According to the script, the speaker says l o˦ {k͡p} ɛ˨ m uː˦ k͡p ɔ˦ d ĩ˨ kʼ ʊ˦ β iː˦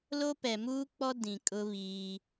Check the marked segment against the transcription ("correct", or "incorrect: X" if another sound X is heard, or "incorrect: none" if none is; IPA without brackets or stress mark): incorrect: p